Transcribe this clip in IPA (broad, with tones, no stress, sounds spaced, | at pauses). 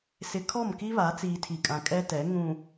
s ɪ˨ kʰ ɔ˦˨ m k i˦ β a˨˦ t͡s iː˨ tʰ i˨ kʼ ã˨ kʼ ɛ˦ t ɛ˨˦ ŋ ũ˨